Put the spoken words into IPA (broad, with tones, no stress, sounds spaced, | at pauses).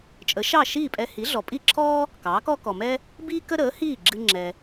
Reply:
t͡ʃʼ ə˩˥ ʃ ɑ˥˩ ʃ iː˥˩ pʼ ɛ˧ h i˩˥ ɮ ɔ˩ pʼ i˥˩ ǁʰ ɔː˥ | k ɑː˩˥ k ɔ˥ k ɔ˩ m ɛ˥ | b iː˥ k ə˥ ɾ əː˩˥ h iː˥˩ ɡ͡ǁ ɨ˧ ŋ͡ǁ ɛ˩